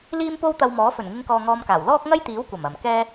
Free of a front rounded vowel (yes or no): yes